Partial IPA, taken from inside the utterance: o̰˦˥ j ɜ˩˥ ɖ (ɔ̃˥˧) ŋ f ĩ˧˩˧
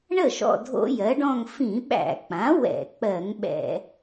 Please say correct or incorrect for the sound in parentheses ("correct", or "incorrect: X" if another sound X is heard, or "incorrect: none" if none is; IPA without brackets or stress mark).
correct